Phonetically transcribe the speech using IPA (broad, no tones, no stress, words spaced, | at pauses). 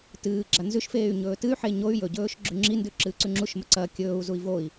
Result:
tɨːɡ͡ǁa nzʉʃfeːy̯ ɲɵːtɨy̯ħe ɲoy̯ jɵɟɵːʃ ɡ͡ǁʉŋ͡ǁindʉ ǁɨːǀʉŋ͡ǁuʃmɐ ǀɐ kʲɵːu̯zui̯ voi̯